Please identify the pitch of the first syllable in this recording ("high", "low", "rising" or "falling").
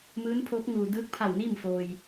rising